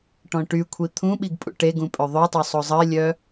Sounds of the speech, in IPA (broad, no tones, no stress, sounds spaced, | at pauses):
ʈ ɔ̃ ʈ y kʷʰ i t̪ʰ ũ ɓ i ɡ pʼ ṵ ʈ e ɡ ũ pʼ ø ðˤ ø tˤ ø sˤ o zˤ ə ɪ̯ lʲ œ